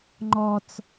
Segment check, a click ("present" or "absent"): present